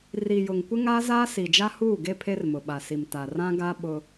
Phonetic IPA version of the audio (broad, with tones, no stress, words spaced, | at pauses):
ri˨jʊ˨ŋ kʷɪ˦ŋaː˦zaː˦ si˨d͡ʒa˦huː˦˨ɡe˦ pʰe˦rmʊ˨ɓa˨si˨m ta˨rã˦ɡa˦ ɓʊ˦